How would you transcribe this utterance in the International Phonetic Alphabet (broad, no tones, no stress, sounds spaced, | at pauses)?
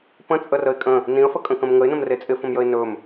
p ə̃ t͡sʼ ə r ə ɪ̯ kʼ ə̃ | n ĩ ə̯ f ə kʼ ə̃ k ə̃ m ŋ ə ɪ̯ n ə̃ m r e t͡sʼ ɪ f ə̃ m j ə ɪ̯ n ɵ m